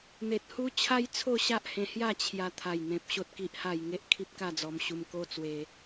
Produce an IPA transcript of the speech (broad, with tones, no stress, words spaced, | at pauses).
n̪e˨t̚hu˦ t͡ɕʰa˦jt͡sʰo˥˧ɕa˦ʔ hẽ˧hja˥˧ t͡ɕʰja˧ t̪ʰa˨˩jn̪ẽ˨p̚ ɕo˦t̚ki˦ʔha˥˧j ŋe˦ʔ kʰi˦p̚ka˥˧d͡zɔ˧m ɕu˧mko˦ t͡swe˧